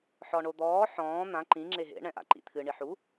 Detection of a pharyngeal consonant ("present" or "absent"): present